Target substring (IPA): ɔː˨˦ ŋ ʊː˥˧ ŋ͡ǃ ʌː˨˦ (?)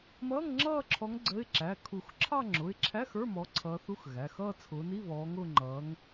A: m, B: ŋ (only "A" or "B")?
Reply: B